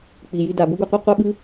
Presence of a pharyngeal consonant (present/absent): absent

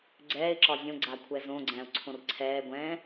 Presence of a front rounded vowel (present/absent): absent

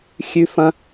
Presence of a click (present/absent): absent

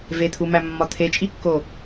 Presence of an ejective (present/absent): present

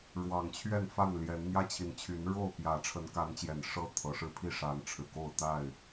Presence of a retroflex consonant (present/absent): present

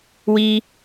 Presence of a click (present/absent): absent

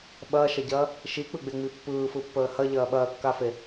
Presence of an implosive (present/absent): present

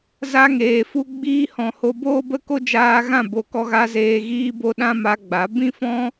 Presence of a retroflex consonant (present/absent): absent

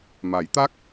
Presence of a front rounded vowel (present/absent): absent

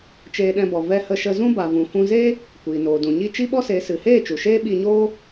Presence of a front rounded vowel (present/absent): absent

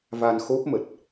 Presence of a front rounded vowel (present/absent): absent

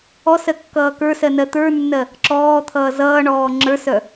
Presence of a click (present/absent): present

